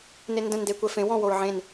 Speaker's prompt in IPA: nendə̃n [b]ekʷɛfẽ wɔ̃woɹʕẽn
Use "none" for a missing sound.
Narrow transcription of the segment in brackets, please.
d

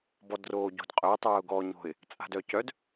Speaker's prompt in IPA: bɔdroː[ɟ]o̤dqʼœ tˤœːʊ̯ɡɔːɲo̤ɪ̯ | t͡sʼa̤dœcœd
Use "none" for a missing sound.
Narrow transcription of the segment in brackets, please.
ɟ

